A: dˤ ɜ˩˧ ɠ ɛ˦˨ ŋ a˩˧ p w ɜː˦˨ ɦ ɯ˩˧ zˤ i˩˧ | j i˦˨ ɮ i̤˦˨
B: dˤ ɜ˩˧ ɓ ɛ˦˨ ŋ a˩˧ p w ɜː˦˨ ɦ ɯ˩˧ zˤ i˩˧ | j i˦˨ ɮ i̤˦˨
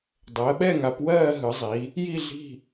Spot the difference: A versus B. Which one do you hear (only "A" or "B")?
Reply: B